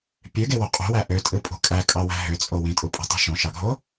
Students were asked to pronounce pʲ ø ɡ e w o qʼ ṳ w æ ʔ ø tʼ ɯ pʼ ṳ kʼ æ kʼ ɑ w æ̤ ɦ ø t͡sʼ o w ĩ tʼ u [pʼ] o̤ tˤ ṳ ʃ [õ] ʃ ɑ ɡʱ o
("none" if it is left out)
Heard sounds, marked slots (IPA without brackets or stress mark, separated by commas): pʼ, õ